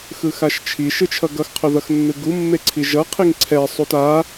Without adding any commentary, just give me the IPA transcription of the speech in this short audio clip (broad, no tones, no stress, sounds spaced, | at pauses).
x ɯ x a ʃ t͡ʃʰ i ʃ ɯ t͡ʃʰ ʌ ɡ ʌ x qʰ o ð ʌ x nː ɯ ɡ u mː e ǀʰ i ʒ ʌ qʰ i ŋ ǀʰ ɛ sˤ u t a